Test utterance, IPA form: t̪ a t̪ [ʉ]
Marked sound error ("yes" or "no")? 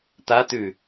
no